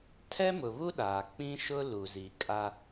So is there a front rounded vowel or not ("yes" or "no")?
no